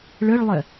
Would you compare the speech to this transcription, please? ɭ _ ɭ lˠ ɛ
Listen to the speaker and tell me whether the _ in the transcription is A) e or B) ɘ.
B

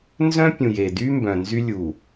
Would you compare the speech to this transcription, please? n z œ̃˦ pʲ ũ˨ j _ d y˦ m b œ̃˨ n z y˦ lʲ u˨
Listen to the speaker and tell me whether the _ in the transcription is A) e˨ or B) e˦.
A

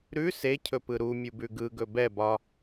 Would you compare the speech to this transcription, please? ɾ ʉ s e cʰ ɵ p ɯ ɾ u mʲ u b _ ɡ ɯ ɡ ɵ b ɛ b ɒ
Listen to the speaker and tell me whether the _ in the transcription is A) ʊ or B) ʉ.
B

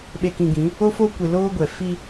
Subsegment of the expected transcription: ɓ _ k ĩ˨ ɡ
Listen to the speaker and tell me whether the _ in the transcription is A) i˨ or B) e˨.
B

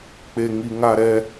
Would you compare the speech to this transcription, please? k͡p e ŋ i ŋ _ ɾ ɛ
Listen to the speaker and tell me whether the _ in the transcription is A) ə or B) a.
B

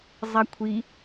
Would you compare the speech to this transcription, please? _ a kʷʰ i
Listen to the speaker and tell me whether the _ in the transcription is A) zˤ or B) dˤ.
A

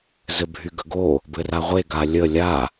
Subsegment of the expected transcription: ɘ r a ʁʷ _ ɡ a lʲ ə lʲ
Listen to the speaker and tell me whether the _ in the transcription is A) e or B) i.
A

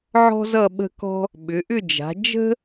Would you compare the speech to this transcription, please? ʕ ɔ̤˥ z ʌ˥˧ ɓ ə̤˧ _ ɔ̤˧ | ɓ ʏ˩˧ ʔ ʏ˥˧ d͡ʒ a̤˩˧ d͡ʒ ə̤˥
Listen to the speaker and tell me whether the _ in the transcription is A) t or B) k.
B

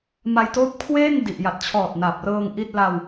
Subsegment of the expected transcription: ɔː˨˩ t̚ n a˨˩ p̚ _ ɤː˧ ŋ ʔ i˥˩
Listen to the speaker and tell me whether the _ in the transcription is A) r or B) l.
A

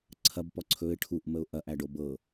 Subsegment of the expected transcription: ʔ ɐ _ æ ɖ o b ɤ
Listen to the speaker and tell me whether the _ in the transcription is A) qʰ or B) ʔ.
B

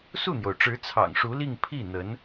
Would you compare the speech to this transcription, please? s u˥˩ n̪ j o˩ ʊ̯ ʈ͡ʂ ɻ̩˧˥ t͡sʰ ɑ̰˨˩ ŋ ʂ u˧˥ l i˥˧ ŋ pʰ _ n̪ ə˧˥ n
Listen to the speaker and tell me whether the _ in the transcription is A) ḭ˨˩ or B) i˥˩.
B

